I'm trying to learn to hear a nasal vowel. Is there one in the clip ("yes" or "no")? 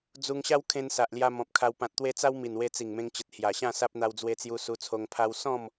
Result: yes